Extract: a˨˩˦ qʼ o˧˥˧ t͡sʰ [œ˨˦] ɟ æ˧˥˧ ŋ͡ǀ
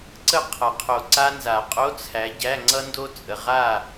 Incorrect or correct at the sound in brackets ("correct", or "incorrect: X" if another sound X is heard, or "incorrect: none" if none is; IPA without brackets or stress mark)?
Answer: incorrect: æ˨˦